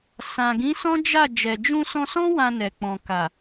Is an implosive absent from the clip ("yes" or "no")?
yes